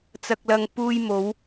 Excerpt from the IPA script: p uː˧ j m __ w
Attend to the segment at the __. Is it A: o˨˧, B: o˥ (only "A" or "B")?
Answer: A